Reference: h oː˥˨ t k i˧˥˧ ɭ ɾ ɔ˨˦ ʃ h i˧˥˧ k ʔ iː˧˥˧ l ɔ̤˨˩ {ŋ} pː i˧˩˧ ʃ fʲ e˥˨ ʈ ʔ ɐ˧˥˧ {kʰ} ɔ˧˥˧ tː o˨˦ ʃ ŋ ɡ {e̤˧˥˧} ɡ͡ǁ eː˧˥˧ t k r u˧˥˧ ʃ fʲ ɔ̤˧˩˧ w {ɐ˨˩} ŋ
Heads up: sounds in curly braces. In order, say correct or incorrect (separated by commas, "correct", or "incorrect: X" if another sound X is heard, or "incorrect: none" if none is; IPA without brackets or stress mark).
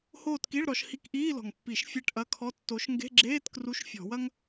correct, correct, correct, incorrect: ɐ˥